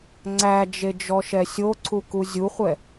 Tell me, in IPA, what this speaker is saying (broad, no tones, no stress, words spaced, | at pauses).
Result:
ŋ͡ǀæd͡ʒed͡ʒɔʃɛ sʲoǀʰuku zʲuχʷɛ